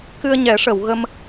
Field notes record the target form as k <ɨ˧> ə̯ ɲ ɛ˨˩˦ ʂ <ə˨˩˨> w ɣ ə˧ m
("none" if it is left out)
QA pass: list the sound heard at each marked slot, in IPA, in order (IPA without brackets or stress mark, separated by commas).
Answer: ɨ˧, ə˨˩˨